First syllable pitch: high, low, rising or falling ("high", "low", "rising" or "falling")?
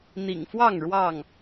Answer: low